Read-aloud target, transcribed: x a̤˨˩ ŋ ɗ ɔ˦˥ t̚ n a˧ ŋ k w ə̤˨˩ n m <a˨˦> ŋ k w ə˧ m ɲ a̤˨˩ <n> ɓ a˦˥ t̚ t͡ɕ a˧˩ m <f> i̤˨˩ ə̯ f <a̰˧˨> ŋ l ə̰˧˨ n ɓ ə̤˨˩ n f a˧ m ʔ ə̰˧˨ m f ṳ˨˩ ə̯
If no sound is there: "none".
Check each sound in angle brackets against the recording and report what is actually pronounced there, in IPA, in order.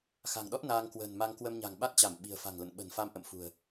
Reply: a˧, ŋ, ɓ, a̤˨˩

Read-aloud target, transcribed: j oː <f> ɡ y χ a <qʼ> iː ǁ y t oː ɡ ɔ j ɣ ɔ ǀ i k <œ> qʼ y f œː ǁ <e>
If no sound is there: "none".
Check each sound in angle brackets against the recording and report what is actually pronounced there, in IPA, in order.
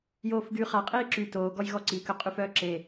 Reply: f, qʼ, œ, e

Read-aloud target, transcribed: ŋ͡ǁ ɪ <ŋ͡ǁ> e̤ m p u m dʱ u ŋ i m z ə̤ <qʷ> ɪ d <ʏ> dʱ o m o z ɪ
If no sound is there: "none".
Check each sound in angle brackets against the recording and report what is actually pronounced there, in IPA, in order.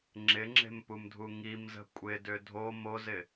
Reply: ŋ͡ǁ, kʷʼ, ʏ

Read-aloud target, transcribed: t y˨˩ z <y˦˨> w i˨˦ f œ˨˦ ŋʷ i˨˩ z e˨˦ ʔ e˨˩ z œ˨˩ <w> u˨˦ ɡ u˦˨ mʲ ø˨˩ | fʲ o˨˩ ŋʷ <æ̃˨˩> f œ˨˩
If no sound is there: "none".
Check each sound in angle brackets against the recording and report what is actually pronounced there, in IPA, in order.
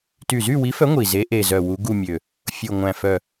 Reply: y˦˨, w, æ̃˨˩

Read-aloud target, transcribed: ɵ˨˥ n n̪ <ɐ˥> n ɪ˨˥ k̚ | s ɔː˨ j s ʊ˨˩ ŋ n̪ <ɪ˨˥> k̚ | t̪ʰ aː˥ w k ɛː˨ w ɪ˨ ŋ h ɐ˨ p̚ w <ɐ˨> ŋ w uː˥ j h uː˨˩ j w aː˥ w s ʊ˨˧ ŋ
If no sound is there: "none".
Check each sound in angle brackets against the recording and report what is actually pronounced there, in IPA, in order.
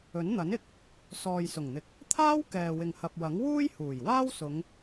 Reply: ɐ˨˥, ɪ˨, ɐ˨˥

